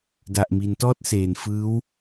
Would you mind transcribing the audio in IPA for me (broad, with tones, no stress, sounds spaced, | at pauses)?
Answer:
d a˨˩ ʔ m i˩˦ n t ɔː˥˩ t̚ s eː˨˩ n f ɯː˦˥ w